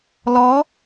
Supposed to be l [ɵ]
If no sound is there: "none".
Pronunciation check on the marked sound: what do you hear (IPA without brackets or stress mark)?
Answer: ɔ